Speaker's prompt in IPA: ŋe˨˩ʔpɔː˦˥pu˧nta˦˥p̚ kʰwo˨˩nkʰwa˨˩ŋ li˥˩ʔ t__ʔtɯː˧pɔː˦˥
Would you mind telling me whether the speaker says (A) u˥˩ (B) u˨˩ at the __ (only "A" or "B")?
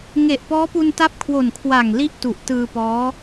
B